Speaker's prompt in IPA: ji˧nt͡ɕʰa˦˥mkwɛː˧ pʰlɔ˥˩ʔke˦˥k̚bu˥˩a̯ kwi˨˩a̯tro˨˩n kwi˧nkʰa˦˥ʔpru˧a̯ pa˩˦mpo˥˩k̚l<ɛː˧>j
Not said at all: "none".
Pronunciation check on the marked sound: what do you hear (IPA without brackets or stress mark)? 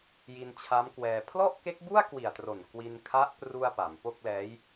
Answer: ɛː˦˥